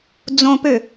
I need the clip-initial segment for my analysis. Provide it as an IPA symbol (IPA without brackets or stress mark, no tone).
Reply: d͡z